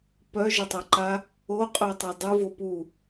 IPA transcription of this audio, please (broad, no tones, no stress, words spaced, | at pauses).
pœʒətˤaǃa | oqʼœtˤœ dˤuvo pu